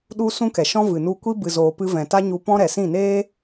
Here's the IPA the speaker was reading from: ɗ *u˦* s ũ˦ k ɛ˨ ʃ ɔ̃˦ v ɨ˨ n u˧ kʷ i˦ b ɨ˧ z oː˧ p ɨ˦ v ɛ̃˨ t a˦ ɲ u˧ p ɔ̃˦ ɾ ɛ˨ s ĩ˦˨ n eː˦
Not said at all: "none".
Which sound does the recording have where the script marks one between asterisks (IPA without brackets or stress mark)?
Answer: u˦